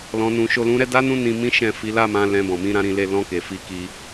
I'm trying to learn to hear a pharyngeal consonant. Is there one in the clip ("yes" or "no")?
no